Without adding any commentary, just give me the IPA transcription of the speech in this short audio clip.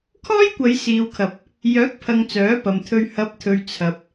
kʰ ɔː˥ j kʷ ɐ˨˧ j s iː˨ w kʰ ɐ˨ p̚ | j œː˨˥ k̚ pʰ ɐ˨ ŋ t͡s œː˨˥ p ɐ˨ m t̪ʰ ɵ˧ ɥ h ɐ˨˥ p̚ t̪ʰ ɵ˨ ɥ t͡sʰ ɐ˨ p̚

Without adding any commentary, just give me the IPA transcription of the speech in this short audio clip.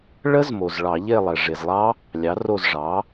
ɭ ə˦˥ z m o˩ z ɭ ɑ˧˩˧ ʎ e˦˨ lˠ ɛ˩ ʐ e˩ z lˠ ɑ˦˥ | lʲ ɑ˩˥ r o˦˨ z ʐ ɑ˩˥

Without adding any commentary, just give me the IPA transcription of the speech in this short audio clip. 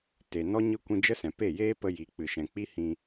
t e˨ n ɔ˦ ɲ ɨ˧ kʷ ĩ˧ d͡ʒ ə˦ s ɛ̃˨ p e˦˨ j eː˦ p ə˧ j i˨ k͡p ɨ˨ ʃ ɛ̃˨ k͡p i˦ h ĩ˧

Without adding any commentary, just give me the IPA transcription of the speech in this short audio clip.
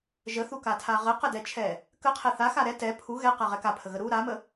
ʒ ə θ u k a tʰ a ʁ ə q ə d ɛ t͡ʃʰ ɛ | k ə qʰ ɛ θ a x a ɾ ɛ t ɛ pʰ u ɣ ɛ q a ʁ ɛ k a pʰ ə ɣ ə ɾ u ɾ a m ə

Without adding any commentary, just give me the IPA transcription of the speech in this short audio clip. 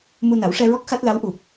m u˧ n a˨˩˦ w ʂ ɛ˧ ɹ ɔ˦˥ k̚ x a˦˥ t̚ l a˧˥ w ʔ u˨˩ p̚

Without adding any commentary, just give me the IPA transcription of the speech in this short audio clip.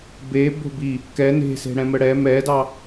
b e b o̤ b i | k ɛ n e̤ s e̤ ɽ ɛ̃ m ə ɽ ɛ m ɛ d ɑ

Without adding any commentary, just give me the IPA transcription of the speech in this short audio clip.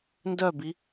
n d œ b i

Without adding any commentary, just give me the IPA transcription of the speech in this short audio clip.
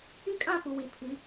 i˦ kʼ ã˦˨ p u˨ w i˨ pʰ i˨˦

